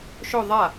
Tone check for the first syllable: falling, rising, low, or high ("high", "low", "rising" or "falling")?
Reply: falling